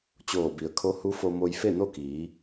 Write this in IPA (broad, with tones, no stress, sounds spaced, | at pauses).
t͡ɕ oː˧˩ b i˩ ə̯ kʰ o˧˥ h u˧˥ f o˧ m o˧ j f e˥˨ n o˥˨ k iː˩˧